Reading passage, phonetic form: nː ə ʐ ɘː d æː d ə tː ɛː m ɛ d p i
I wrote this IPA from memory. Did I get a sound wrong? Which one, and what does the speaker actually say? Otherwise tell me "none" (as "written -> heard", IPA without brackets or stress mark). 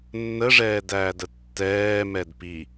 ɘː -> ɛː